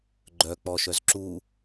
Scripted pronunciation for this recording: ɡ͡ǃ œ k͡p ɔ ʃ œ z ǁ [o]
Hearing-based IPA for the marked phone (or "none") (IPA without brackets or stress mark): u